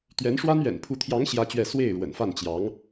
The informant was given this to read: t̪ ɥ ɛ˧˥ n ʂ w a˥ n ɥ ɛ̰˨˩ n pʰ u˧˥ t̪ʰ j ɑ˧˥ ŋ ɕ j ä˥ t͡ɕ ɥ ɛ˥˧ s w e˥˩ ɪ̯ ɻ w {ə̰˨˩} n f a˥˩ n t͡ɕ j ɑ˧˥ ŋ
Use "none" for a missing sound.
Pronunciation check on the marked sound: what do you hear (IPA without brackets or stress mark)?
ə̰˨˩